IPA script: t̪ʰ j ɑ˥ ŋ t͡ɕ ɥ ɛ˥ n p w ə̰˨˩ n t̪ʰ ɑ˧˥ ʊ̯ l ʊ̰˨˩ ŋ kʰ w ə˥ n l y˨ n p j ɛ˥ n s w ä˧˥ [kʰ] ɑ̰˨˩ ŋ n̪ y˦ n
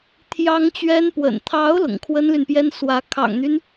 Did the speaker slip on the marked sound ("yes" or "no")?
no